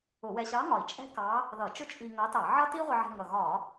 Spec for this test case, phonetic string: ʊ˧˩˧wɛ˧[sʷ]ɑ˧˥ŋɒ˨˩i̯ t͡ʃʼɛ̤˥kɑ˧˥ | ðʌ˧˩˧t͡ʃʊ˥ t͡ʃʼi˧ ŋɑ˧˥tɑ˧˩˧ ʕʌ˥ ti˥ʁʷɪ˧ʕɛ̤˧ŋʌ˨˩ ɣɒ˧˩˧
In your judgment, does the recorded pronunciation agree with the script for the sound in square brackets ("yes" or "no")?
no